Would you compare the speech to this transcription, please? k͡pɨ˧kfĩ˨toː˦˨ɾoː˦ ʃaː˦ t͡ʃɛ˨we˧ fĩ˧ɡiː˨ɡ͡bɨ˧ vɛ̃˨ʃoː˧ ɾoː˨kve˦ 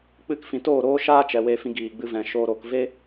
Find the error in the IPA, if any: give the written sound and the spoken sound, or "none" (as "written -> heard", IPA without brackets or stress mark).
none